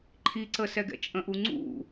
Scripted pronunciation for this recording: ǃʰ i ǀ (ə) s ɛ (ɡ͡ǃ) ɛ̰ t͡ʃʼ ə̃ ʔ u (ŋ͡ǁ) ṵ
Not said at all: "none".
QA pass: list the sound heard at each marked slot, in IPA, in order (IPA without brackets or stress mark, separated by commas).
ə, ɡ, ŋ͡ǀ